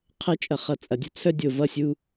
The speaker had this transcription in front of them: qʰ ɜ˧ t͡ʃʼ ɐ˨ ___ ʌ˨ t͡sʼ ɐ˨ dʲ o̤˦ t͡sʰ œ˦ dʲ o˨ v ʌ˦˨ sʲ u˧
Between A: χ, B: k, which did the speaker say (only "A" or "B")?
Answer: A